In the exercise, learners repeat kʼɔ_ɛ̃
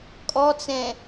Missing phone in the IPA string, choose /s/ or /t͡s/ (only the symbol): t͡s